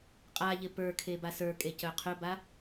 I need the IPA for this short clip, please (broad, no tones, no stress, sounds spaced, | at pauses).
qʼ a ʎ ɪ p ə˞ kʰ e b a s ə˞ kʼ e c œ qʰ ɵ b a